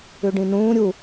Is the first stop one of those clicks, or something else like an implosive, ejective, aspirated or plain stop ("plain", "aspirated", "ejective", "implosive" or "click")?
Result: plain